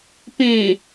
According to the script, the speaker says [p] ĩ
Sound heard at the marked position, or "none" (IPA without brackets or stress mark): p